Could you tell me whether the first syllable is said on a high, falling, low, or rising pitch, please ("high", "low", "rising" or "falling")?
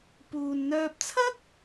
low